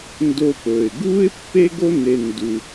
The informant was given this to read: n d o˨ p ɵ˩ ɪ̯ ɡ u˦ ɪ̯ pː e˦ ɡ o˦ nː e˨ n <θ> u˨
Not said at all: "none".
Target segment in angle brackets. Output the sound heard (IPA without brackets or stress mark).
d